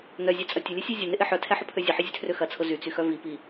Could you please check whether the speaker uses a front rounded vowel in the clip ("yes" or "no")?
yes